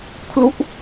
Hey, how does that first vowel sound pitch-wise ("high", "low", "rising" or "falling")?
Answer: falling